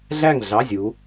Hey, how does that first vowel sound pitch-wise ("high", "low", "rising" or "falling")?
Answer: falling